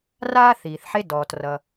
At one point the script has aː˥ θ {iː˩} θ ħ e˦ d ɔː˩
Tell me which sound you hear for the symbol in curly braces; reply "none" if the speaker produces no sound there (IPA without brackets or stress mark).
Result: iː˩